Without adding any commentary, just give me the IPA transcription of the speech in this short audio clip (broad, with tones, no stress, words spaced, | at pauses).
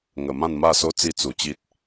ŋə˨˩ mã˥˧nma˥˧so˦ t͡si˦t͡su˨˩t͡ɕi˦t̚